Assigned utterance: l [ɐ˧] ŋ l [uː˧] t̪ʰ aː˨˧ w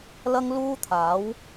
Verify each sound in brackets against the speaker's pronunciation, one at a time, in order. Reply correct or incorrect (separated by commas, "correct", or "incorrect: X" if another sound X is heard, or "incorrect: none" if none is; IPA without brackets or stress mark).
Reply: correct, correct